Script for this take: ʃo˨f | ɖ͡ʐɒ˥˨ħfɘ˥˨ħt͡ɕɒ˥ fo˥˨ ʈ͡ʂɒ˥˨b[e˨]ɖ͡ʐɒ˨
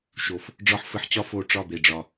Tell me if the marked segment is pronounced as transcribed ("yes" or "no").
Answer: yes